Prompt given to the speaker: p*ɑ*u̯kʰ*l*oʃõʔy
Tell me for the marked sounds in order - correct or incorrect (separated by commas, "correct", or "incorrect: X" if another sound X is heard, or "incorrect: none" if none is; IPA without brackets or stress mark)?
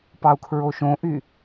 correct, incorrect: ɹ